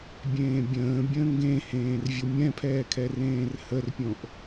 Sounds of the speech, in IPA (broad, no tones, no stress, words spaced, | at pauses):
bʲẽːbʲə̃ːbʲə̃ː ŋɡẽhẽːr vʲomʲɛ̃pʰɛː kʰɛrẽːrhərpʲõʔ